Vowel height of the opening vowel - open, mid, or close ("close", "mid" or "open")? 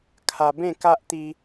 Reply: open